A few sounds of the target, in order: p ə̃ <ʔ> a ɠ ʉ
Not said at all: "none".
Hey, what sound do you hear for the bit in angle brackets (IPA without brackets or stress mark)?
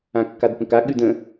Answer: k